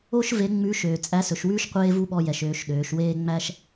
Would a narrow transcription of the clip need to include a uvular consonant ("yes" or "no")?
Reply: yes